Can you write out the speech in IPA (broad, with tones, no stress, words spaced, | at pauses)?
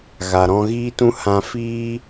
ɣa˨ɾɔ̃˧ɣiː˦tũ˦ hã˧fiː˦